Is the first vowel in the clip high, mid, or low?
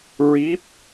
high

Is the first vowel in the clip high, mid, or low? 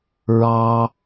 low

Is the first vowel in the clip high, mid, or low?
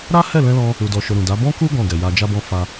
low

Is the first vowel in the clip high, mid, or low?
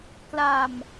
low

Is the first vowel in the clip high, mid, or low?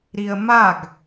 high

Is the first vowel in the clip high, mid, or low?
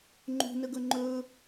high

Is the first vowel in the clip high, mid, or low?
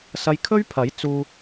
low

